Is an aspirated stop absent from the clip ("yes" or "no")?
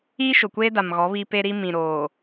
yes